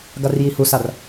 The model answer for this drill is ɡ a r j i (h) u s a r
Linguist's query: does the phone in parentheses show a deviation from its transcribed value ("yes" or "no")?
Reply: no